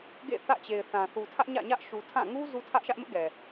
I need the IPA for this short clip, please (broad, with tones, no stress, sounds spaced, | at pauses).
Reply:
ɡ ḛ˦˨ θ ä̰˦˨ t͡ɕ e˨ ɪ̯ θ ã˨ θ u˨ tʰ ä˦ ʔ ɲ ä̰˦˨ ɲ ä˦ ʔ ʃ u˨ tʰ ã˦˨ ŋ u˦ z u˦ tʰ ä˦ ʔ ʃ ä˦ ʔ m ɪ˦ ʔ ɡ ɛ˨